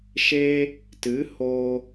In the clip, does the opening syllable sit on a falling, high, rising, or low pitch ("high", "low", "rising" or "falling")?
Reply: high